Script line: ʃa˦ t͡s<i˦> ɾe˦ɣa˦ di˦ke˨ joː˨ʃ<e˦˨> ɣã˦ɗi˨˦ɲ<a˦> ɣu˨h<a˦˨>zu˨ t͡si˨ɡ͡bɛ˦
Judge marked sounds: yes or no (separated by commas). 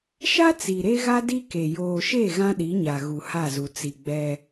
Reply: no, yes, no, yes